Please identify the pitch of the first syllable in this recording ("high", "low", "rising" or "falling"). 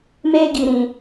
high